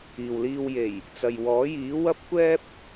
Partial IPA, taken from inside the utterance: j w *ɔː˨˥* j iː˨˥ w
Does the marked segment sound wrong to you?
no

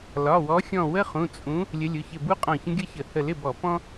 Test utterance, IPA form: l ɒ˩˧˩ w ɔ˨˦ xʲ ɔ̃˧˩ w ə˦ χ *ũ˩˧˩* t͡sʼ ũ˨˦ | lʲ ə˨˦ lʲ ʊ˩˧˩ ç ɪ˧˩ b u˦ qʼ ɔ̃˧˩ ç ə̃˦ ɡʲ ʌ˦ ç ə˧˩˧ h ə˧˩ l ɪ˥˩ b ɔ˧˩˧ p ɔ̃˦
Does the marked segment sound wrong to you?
no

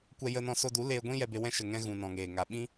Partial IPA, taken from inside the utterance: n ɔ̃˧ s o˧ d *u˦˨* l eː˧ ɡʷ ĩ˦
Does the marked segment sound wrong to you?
yes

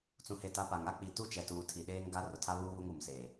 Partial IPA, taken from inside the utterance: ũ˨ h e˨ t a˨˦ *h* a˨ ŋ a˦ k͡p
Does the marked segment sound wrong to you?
yes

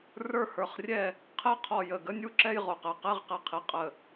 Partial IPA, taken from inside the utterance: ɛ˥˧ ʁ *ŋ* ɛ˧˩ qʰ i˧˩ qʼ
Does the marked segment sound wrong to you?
yes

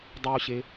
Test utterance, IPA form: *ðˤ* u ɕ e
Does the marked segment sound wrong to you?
yes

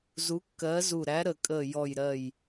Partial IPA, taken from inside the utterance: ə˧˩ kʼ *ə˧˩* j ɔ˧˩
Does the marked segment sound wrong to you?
no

